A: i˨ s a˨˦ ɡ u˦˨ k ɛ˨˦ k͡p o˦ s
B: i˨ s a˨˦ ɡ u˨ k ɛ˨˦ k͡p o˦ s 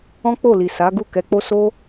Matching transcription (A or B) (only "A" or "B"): A